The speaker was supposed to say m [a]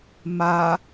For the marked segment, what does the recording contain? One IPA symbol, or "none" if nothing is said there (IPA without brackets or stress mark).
a